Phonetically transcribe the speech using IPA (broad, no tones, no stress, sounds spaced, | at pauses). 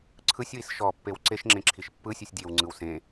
ǀʰ ɯ sʲ w i s ʃ ɔ pː e w ǀ e ʃ ŋ͡ǁ ẽ ǁʰ i ʃ pː ɯ sʲ u sʲ dʲ e w ŋ͡ǀ ɯ w s ẽ